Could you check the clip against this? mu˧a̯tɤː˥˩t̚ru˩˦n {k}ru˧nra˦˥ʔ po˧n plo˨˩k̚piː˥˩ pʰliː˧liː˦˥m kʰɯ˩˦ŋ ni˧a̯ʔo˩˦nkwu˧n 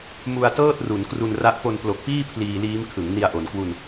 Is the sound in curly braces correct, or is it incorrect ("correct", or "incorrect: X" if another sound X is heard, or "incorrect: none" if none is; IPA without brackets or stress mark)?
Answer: correct